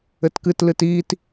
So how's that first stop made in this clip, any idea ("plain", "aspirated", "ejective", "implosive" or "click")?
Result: plain